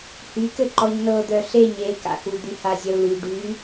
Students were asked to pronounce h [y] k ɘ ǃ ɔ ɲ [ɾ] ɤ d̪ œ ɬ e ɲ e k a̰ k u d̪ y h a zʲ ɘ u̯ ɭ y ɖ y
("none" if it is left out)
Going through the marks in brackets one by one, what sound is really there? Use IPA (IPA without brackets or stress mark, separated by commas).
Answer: y, n